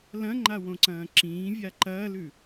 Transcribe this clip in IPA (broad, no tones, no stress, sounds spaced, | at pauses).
l ɐ̃ ŋ͡ǃ a w õ ǀ ɐ̃ː ǁ ĩː vʲ a ǃ ɐː l ʉ